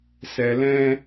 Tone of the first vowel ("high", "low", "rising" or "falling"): low